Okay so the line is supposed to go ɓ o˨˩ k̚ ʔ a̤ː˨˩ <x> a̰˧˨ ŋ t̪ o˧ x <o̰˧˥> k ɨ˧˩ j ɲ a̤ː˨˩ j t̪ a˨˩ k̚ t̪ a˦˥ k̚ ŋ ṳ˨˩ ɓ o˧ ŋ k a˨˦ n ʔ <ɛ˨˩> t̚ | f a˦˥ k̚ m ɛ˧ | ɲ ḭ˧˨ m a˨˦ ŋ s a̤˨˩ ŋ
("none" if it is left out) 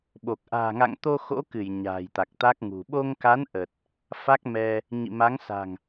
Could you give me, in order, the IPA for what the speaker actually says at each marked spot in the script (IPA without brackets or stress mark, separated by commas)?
ŋ, o̰˧˥, ə˨˩